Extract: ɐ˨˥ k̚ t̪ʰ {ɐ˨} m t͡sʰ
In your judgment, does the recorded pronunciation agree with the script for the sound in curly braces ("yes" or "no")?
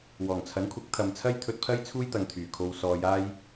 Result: yes